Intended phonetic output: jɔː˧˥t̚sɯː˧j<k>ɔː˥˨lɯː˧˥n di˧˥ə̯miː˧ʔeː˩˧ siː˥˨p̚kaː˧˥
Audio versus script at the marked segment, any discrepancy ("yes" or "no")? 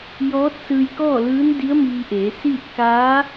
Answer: no